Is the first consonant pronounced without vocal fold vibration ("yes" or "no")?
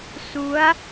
yes